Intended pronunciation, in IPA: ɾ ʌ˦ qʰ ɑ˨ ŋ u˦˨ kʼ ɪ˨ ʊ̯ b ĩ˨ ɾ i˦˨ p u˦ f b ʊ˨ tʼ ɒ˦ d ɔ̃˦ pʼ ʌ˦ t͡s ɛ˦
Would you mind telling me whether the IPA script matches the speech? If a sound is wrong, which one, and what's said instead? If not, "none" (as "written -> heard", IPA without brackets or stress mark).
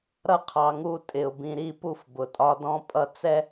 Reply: kʼ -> tʼ